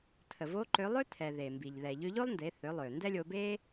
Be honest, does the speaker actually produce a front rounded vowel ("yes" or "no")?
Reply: yes